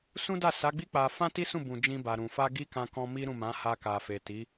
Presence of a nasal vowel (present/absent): present